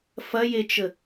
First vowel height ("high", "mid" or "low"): low